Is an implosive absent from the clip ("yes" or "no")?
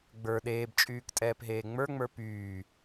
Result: no